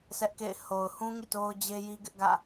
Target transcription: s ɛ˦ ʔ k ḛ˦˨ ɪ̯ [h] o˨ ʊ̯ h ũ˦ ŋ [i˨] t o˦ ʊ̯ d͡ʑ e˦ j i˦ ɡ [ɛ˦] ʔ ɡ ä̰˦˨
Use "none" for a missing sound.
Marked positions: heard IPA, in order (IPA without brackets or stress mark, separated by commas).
h, ḭ˦˨, ɪ˦